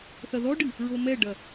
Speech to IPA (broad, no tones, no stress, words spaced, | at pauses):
θɐðɔɖɨ | ɹomɛɖɐ